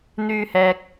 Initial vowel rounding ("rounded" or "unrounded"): rounded